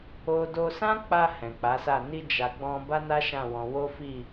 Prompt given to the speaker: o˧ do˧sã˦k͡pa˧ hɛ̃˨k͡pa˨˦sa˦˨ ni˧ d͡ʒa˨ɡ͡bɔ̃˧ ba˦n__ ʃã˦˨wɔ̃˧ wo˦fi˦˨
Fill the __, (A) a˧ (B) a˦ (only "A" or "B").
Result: B